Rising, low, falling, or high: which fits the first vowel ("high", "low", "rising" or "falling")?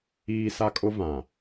high